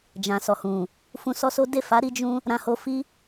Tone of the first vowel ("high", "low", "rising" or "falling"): low